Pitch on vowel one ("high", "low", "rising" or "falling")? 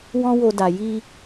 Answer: high